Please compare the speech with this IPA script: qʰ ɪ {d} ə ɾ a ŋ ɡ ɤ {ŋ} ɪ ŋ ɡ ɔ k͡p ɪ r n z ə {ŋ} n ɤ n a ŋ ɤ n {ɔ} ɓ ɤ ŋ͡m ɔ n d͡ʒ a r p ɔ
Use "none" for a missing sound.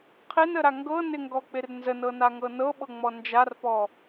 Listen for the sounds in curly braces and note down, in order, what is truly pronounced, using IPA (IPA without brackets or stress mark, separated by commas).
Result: n, n, none, ɤ